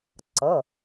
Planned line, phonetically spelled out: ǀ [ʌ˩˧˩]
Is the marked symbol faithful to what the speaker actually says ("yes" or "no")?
yes